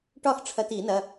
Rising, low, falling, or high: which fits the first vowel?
falling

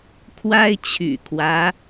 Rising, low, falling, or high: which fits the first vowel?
high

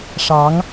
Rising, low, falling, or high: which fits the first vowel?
rising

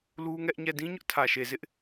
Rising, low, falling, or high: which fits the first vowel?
high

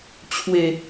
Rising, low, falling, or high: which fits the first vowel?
low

